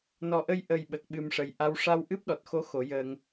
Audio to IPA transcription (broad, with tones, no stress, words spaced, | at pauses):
nɔ˨˩ʔə˧j ʔə˨˩jɓə˨˩k̚ ɓɨ˨˩mʂə˨˩j ʔa˧w ʂa˧wʔɨ˦˥p̚ɗɔ˨˩t̚ xo˧˥ xo˨˩˦jəː˧ŋ